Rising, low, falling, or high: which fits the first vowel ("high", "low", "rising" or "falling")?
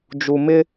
low